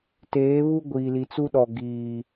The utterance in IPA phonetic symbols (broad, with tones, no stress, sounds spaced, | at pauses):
t eː˨˦ β u˦ ɡʷ i˨ l i˨ t͡s u˦ ɗ ɔ˨ ɡ iː˨